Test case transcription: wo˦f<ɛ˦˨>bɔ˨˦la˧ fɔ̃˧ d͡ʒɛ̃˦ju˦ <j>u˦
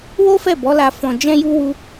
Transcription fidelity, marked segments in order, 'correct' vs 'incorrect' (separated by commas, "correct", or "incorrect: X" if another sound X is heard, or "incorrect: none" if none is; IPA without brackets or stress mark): correct, incorrect: w